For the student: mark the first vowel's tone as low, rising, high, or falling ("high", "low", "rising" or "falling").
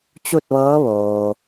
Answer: falling